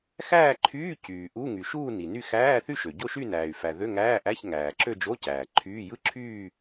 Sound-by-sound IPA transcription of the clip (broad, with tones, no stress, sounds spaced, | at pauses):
x æː˥˧ ǃʰ yː˧˥˧ c yː˩ ʔ u˧˥˧ ŋ y˩ ʃ uː˥˧ n i˩ n y˥˧ x æː˧˥˧ θ y˥˧ ʃ ø˩ ɟ o˥˧ ʃ y˥˧ n æː˩ y̯ f æ˩ ð ø˧˥˧ ŋ æː˧˥˧ ʔ æ˧˥˧ ç ŋ æː˩ ǁ ø˥˧ d͡ʒ o˧˥˧ c æː˩ ǃʰ yː˧˥˧ j ɯ˥˧ ǁʰ yː˥˧